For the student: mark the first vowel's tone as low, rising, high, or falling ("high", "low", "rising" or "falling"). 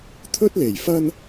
high